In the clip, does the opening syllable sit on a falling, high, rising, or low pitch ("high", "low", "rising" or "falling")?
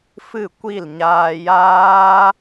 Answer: falling